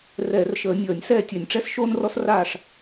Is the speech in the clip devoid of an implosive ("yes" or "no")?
yes